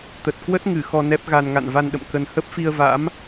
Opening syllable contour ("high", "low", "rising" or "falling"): low